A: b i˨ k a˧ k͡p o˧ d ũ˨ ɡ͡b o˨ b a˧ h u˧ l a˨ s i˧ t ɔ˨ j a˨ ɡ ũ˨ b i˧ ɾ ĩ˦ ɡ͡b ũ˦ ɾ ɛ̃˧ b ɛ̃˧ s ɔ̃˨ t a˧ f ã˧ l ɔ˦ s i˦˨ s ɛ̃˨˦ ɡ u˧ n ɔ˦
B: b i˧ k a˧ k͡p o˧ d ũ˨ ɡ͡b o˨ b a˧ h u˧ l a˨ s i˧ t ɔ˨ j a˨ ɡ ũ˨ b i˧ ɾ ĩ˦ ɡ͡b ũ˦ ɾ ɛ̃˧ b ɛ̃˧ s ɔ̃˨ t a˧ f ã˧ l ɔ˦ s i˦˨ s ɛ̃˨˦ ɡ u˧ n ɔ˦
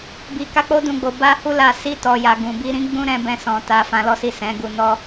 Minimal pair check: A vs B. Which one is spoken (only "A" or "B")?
A